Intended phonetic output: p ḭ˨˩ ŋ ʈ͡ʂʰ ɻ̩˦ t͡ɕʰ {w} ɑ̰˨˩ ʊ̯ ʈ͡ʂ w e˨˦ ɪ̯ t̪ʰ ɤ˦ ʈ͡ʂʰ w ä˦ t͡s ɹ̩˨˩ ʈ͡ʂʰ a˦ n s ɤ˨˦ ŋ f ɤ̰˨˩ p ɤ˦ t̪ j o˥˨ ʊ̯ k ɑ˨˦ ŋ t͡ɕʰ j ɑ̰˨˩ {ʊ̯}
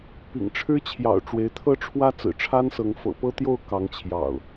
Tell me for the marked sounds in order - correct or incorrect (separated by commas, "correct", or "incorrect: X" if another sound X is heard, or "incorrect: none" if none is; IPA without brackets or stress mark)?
incorrect: j, correct